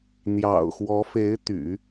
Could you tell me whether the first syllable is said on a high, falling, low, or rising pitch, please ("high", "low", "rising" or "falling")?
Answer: low